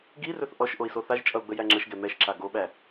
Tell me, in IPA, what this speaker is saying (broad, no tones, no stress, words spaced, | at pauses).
ɡirɵθ ʔɔʃ ʔoi̯soθaʒt͡ʃʼʌu̯ ɡ͡bəjæŋ͡ǁəʃɡɛ mɛʃǁa ɡoɓæ